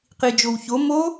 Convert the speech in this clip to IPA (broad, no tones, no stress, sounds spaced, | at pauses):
q i d͡ʒ o w ç o m o